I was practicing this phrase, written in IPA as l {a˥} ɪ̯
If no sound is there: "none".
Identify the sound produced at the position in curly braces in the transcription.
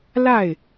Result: a˥˩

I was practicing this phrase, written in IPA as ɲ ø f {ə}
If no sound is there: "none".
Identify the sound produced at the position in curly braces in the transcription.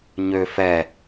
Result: ɛ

